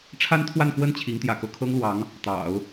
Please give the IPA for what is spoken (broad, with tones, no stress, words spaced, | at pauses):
ʈ͡ʂʰa˥nt̪ʰwa˥˧nkwə˥˩n t͡ɕʰi˧˥ŋt̪jä̰˨˩kɤ˥˩ kʰɤ˥ŋlwɑ˧˥ŋ | t̪ɑ̰˨˩˦ʊ̯